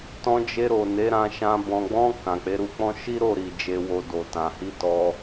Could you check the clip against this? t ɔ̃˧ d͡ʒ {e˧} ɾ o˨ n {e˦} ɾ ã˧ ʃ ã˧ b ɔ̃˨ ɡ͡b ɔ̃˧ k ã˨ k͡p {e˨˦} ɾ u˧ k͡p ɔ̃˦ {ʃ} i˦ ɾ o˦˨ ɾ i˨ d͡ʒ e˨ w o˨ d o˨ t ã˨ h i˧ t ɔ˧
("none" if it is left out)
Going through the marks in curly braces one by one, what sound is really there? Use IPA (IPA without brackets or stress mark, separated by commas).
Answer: e˧, e˨˦, e˨˦, ʃ